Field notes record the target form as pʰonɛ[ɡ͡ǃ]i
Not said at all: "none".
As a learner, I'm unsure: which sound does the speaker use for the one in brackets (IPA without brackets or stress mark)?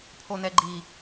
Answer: ɡ͡ǃ